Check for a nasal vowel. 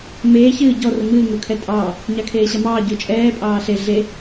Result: absent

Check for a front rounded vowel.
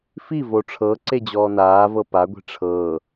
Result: absent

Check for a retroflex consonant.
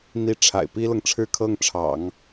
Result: present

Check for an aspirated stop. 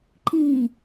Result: absent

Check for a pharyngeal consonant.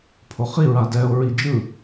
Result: absent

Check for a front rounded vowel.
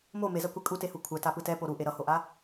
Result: absent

